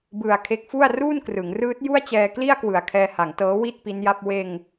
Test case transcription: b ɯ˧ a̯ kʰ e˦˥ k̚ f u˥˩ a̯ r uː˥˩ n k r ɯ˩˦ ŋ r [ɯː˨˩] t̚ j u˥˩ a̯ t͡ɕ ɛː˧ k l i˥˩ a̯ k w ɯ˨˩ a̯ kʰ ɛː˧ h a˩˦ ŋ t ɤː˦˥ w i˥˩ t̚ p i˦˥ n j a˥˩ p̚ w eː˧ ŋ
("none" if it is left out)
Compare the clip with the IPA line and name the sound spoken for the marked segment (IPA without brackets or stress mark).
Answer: ɯː˦˥